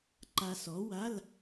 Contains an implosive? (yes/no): no